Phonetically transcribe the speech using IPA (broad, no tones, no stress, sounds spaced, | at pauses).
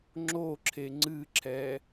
ŋ͡ǁ o ǁʰ e ŋ͡ǀ ɨ ǁʰ ɛ